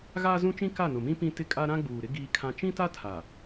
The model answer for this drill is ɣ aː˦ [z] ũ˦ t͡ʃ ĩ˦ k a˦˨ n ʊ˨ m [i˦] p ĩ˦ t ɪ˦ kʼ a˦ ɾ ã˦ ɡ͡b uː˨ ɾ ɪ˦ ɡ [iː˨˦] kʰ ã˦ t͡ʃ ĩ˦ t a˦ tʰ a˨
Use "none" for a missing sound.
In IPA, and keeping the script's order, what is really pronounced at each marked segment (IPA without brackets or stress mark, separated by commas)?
z, ĩ˦, iː˦